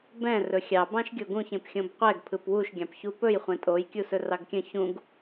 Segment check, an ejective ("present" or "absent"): present